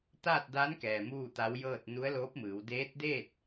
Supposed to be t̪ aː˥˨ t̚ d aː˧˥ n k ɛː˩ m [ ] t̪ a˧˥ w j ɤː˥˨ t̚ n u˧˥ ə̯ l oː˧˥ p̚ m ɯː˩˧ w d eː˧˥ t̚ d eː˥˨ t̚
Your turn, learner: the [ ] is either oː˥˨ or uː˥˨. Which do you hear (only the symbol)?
uː˥˨